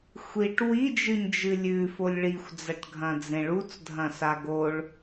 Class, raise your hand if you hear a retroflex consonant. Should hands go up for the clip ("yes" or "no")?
yes